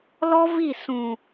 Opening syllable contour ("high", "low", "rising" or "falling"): high